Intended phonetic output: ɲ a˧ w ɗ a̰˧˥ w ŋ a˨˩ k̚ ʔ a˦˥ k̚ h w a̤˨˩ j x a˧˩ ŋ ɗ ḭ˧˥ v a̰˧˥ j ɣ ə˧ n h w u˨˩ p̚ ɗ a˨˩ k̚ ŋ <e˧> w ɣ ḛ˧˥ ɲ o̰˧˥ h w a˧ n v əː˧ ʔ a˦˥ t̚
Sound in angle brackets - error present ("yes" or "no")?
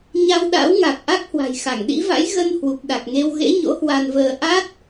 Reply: no